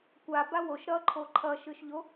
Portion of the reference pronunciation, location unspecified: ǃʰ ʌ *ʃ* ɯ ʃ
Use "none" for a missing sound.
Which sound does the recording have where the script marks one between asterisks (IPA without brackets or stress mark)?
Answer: ʃ